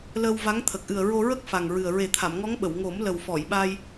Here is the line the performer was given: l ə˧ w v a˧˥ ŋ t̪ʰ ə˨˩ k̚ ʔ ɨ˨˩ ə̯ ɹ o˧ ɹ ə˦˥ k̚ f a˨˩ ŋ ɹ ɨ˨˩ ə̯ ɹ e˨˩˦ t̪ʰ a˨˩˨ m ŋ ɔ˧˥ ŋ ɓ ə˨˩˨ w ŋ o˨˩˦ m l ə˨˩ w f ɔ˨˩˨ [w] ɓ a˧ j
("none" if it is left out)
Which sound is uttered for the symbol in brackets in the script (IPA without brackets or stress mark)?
j